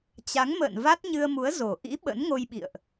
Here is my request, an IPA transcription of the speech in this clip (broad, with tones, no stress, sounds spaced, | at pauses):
t͡ɕ a˨˦ ŋ m ə̰ː˧˨ n v a˦˥ t̚ ɲ ɨ˧ ə̯ m u˨˦ ə̯ z o˨˩ ʔ ḭ˧˥ ɓ ə̰˧˥ n ŋ o˧ j ɓ ḭ˧˨ ə̯ ʔ